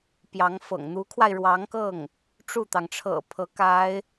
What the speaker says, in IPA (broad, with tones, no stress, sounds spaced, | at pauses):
p j ɑ˧˥ ŋ f ɤ̰˨˩ ŋ n̪ u˧˥ kʰ w a˧ ɪ̯ ɻ w ɑ˧˥ ŋ k ɤ˥˩ ŋ | ʈ͡ʂ u˥˩ t̪ ɑ˩ ŋ ʈ͡ʂʰ ɤ̰˨˩ pʰ ɤ˧˥ k a˧˥ ɪ̯